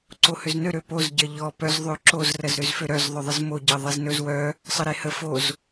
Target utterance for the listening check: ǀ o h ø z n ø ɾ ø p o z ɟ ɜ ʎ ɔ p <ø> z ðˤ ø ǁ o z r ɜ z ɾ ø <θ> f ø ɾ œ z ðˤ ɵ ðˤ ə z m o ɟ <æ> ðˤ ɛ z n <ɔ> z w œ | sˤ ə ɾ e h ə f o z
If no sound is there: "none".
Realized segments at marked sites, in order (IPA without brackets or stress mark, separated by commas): œ, z, ɜ, ɵ